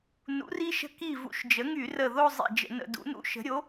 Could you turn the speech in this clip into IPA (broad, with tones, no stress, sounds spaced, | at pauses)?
n ṵ˩˥ r i˧˥ ʃ ə̤˧˥ k i˧˩ v ṵ˧˩˧ ʃ d͡ʒ ə˩˥ ŋ y˧˩˧ r ə˧˩ ð o˥˧ zˤ ḭ˧˩ d͡ʒ ə̰˧˩˧ n ə̰˧˩˧ d ṵ˩˥ n ṵ˧˥ ʃ ə̤˩˥ ɾʲ o˩˥